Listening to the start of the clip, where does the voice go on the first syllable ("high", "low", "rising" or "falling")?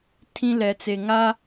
high